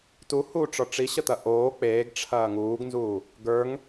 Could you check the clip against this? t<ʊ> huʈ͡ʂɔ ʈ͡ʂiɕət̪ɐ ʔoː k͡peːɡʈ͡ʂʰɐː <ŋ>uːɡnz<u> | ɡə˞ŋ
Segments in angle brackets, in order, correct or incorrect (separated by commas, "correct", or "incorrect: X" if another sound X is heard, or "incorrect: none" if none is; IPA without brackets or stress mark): incorrect: u, correct, incorrect: uː